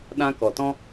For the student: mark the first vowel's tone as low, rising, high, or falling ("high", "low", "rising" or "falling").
high